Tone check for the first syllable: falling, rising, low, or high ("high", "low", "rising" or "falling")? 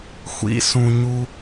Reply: low